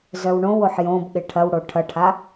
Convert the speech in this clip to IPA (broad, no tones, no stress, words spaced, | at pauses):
zœwɳõwoħ jõbɠɪ ʈʰɐwɽo ʈʰɐʈʰa